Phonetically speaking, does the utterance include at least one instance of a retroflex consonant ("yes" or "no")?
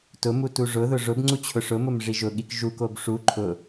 yes